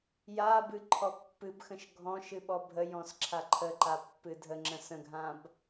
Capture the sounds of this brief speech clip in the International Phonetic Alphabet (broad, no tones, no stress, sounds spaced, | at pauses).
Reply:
j a b ɨ ǃʰ ɔ pː ɨ b x ə̃ ʃ ɡʱ ɔ̃ ʃ ɨ ɓ ɔ bʱ ə j ɔ̃ s ǁʰ a ǃʰ ə ǃ a pː ɨ dʱ ə ŋ͡ǁ ə̃ s ə̃ ɡʱ ã b